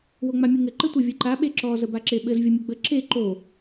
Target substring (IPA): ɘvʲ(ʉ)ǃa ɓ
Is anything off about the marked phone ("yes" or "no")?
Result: yes